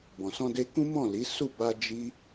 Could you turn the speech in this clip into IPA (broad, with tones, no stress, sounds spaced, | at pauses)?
b ɔ̃˨ s ɔ̃˧ d e˧ k ũ˦ m ɔ̃˦˨ l i˨˦ s u˦˨ b a˧ d͡ʒ i˦